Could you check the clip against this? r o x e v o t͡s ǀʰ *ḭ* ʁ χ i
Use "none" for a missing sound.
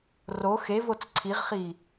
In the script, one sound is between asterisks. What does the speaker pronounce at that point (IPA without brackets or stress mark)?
i